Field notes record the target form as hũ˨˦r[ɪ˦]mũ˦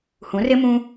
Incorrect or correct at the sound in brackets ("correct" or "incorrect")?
correct